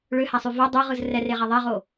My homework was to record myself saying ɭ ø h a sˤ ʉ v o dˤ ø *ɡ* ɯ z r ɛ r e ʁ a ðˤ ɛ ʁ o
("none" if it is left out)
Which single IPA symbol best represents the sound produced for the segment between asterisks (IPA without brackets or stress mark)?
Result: ʁ